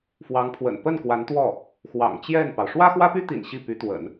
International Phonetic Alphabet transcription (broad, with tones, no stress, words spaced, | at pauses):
fwɑ˧˥ŋpʰwə̰˨˩n pə˥˩n kwa˧˥nt̪wɔ˥˩ | xwɑ̰˨˩ŋt͡ɕjɛ˥˩npɑ˩ʊ̯ ʂwä˥xwä˥py˥t̪ḭ˨˩n ɕi˥˩py˧˥t̪wə̰˨˩˦n